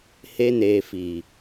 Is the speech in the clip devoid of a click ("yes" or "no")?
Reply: yes